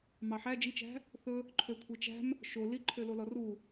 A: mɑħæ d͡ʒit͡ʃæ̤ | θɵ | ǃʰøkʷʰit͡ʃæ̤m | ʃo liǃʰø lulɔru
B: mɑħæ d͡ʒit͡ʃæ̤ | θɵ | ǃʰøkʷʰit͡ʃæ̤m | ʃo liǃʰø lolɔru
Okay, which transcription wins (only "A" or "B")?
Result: B